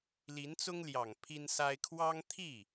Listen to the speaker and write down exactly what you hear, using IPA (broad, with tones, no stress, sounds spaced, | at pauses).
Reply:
l i˧˥ n t͡s ʊ˥ ŋ l j ɑ˨˩ ŋ pʰ i˥ n s a˥ ɪ̯ kʰ w ɑ˥ ŋ t̪ʰ i˥˩